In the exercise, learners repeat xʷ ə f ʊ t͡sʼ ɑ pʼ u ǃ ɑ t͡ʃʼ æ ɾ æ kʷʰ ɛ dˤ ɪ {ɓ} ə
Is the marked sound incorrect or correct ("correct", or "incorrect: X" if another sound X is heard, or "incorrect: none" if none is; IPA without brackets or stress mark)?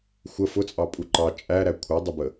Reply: incorrect: b